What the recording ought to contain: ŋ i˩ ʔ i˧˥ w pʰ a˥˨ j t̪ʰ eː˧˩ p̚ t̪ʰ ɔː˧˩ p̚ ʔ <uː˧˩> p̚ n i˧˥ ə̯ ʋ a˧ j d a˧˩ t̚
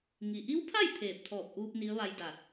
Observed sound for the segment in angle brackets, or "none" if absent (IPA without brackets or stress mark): uː˧